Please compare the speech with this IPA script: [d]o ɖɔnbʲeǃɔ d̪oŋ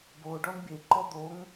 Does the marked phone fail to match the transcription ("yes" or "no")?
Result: yes